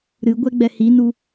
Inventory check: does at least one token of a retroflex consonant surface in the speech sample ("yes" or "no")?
no